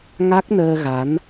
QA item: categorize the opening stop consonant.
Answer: plain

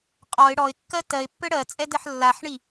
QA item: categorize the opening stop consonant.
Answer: ejective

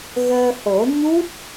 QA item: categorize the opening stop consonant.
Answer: plain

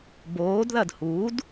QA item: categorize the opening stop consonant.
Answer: plain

